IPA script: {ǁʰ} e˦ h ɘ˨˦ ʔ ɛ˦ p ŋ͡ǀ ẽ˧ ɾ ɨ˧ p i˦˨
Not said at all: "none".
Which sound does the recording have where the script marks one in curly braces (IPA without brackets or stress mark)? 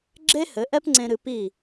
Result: ɡ͡ǁ